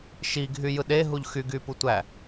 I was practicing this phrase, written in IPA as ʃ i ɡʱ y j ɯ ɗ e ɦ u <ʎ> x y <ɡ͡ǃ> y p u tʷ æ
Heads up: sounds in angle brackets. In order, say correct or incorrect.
correct, incorrect

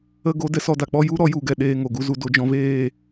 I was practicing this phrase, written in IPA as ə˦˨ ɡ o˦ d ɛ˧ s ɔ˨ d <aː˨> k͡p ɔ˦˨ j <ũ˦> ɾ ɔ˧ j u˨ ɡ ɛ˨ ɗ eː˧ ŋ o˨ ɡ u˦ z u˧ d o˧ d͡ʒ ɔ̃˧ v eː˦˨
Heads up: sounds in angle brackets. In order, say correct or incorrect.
incorrect, incorrect

